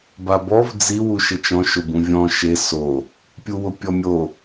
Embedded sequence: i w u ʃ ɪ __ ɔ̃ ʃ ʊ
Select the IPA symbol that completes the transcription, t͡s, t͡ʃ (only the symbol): t͡ʃ